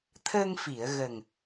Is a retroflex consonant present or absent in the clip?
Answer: absent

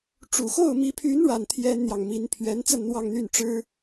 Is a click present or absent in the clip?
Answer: absent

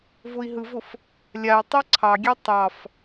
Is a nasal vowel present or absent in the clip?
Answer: absent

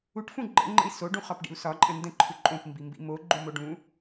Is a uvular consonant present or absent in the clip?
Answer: present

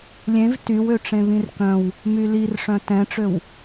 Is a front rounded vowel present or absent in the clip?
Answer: present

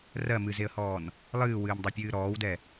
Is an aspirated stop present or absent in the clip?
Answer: absent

